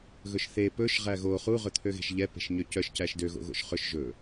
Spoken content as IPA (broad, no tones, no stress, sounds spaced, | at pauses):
ɣ ɵ ʃ θ e p ɵ ʃ ʁ æ ɣ o χ u ʁ ɵ t̪ʰ ø ɣ e̤ ʃ ʎ ɛ p e̤ ʃ ɲ ø c œ ʃ c æ ʃ d ø ɣ o̰ ɣ o̰ ʃ χ ɵ ʃ ʒ ɵ